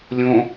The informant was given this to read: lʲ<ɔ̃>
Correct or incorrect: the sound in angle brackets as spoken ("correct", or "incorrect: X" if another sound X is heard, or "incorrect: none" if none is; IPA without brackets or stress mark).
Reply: incorrect: õ